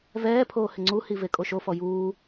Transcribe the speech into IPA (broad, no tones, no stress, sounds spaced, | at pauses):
v ɛː pʰ oː h ɪ ŋ͡ǀ u h i v e kʼ o ʃ o f ɔ j uː